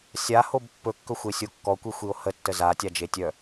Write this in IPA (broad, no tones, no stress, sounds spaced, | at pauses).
sʲ a h o b pː ɵ kː ɵ xʷ e sʲ o kː ɔ kʷ i xʷ i o̯ h ə tː ə z a tʲ a d͡ʒ e tʲ œ